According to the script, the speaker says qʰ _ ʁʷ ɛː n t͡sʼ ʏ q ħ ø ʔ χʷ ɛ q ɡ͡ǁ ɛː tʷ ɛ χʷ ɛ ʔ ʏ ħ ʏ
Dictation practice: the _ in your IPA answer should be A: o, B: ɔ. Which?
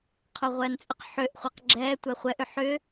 A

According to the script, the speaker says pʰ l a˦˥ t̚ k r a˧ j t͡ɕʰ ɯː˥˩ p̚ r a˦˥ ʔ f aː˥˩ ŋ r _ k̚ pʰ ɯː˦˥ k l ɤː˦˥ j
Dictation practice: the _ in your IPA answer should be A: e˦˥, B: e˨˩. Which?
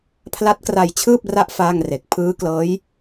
B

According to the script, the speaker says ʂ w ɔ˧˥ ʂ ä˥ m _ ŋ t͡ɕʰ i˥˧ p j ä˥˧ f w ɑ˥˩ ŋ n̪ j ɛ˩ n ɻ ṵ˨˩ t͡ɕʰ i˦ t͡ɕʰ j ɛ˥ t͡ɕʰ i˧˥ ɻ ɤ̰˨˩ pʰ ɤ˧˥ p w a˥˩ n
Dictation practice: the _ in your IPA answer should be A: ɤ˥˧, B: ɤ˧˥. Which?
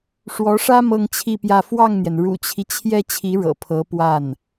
A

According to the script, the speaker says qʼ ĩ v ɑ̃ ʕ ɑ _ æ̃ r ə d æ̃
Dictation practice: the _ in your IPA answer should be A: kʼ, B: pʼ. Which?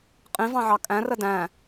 A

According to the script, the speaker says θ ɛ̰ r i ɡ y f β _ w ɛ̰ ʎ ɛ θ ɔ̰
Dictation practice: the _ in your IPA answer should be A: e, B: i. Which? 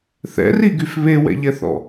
A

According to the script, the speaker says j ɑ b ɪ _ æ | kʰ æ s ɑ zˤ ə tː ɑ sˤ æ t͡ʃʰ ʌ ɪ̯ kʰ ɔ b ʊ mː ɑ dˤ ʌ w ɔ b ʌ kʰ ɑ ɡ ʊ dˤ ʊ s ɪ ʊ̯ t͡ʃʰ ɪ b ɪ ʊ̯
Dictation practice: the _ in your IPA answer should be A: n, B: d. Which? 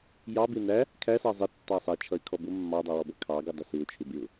A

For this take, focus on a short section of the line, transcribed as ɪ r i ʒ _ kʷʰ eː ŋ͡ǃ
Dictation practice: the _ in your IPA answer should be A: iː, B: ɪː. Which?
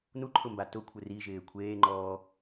B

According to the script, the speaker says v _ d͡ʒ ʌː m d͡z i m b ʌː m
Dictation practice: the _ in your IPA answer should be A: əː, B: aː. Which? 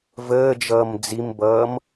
A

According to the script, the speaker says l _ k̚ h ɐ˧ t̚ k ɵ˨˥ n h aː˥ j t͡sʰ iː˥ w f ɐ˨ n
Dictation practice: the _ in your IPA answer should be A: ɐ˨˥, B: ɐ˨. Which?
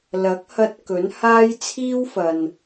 A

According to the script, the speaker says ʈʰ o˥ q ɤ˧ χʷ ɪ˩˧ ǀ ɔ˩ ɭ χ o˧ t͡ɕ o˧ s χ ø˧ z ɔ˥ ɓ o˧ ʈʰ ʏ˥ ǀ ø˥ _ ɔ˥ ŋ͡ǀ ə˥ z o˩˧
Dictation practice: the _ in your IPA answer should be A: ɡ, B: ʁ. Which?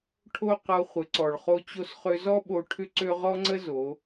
B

